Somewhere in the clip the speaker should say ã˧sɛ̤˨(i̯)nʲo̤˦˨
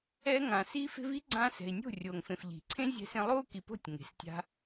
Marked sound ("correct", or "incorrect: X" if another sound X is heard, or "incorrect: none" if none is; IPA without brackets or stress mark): correct